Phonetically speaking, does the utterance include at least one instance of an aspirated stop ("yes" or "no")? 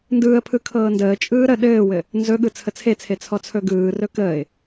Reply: yes